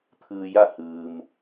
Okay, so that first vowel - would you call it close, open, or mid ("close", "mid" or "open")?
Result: close